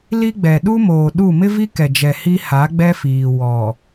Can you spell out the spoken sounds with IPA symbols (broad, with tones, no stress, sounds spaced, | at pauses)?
l i˦ ɡ͡b ɛ˨ ɗ u˦ m oː˨ ɗ u˦˨ m ɪ˦ v i˦ k ɛ˨ d͡ʒ ɛ˨ h i˦ h a˨˦ ɡ͡b ɛ˦ f iː˨ w ɔ˨